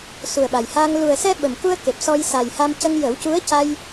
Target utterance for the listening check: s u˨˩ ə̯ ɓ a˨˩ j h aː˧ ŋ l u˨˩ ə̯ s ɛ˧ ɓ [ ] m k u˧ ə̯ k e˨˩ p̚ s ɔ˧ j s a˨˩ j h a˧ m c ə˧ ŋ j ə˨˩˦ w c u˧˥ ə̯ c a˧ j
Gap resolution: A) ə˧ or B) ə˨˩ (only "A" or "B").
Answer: B